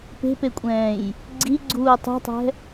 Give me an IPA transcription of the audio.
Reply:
pe̤pekʷʼɛ̃ːj | ɡ͡ǀiɡ͡ǀuː tˤṳtˤɛ̤

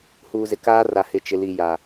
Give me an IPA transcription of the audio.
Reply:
hu˨zɪ˨kaː˦ ra˨hɪ˨t͡ʃɪ˨li˨ ja˨

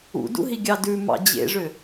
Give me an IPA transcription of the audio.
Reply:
ṵdṵɦiɡʲɑ dʉmɑ̰ d͡ʑḛʐø

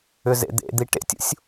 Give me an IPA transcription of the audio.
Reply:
ʏzḛd̪ḛd̪i ʈḛtʲṵsʲ

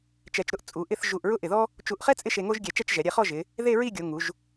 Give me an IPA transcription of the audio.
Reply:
t͡ʃɛ˧t͡ʃɾʊ˥˧ʔ t͡sʼu˩˧ʔɪ˥˧θ ʒu˧˩ʔɹʊ˥ ʔɪ˧˩ðɔ˥ | t͡ʃu˧˩ʔχɛ˥ t͡sʼɪ˥ʃe˧ŋo˥ʒɡʲɛ˧˩ t͡ʃɛ˥˧t͡ʃʒɛ˩˧ɾʲɛ˧χɔ˥˧ ʒɪ˩˧ | ðe˥˧ɹi˥˧ɡʲo˩˧ ŋu˩˧ʒ

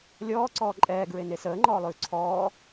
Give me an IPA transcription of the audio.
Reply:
lʲɔːǀɔː ǃʼɛːɡɹene səːŋ͡ǃɔːlˠʉː ǀʰɔː

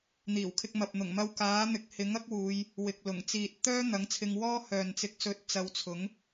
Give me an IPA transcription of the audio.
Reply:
n̪iː˨˩wkʰɪ˧k̚ mɐ˨p̚n̪ʊ˨˩ŋmɐ˧w kaː˨˥n̪ɪ˨˥k̚ hɪ˨˥ŋ ɐ˥k̚wuː˨˧j | wɪ˨k̚lʊ˨˩ŋ t͡siː˨t̚t̪œː˥ n̪ɐ˨˥ŋt͡sʰɪ˧ŋwɔː˥hœː˨n t͡sɪ˨k̚sɵ˨˥t̚ t͡sɐ˨˧wt͡sʰʊ˨˥ŋ

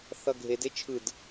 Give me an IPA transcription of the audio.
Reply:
θʌɡʱed et͡ʃʰɯd

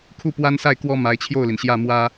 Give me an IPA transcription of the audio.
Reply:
kʰu˥˩pwa˥nsa˥˩ɪ̯ kwɔ˥ ma˧˥ɪ̯t͡ɕʰjo˥˩ʊ̯li˩n ɕjä˥˩mwä˥

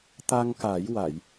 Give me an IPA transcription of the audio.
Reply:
t̪a˧ŋka˨˩˦j wa˨˩˨j

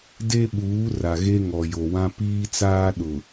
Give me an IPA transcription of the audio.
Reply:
de˦ɓuː˨˦ ra˨ɣe˦ ŋɔ˨jo˨wã˦ piː˦t͡saː˦ɗʊ˨

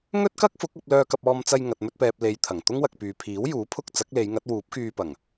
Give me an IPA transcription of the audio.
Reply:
ŋɵ˥t̚kɐ˥k̚fʊ˨˥k̚ɐ˧p̚ lœː˧kɐ˧p̚ɔː˧mt͡sɐ˧j ŋɐ˨t̚mɵ˧t̚pɛː˨p̚ le˨j t̪ʰɐ˨˩ŋt̪ʊ˥ŋ wɐ˨k̚pyː˨ pʰiː˨˥wjuː˨˥pʰʊ˧k̚ t͡sɐ˨˥k̚le˨˧jŋɐ˨˥t̚wuː˨˥p̚ kyː˧pɐ˨˩ŋ

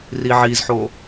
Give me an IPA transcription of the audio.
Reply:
riʕizħo

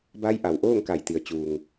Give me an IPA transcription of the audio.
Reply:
ba˧˥jʔa˩wʔoː˥˨ŋka˧˩j t̪i˩ə̯t͡ɕuː˩ŋ

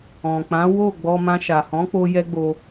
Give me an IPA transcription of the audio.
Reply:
ɔ̃˨k͡pã˨˦ wo˦˨ɡ͡bɔ˧mã˧ ʃa˨hɔ̃˨˦ k͡po˦jɛ˦ɡ͡bo˧

